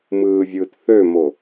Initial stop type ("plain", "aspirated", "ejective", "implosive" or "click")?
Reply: plain